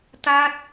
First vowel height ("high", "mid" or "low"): low